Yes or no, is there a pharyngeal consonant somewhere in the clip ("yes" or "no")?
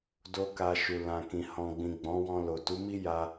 no